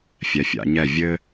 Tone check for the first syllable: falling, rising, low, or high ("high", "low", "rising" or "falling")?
low